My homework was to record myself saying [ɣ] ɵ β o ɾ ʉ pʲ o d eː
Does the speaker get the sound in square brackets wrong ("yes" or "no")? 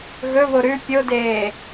no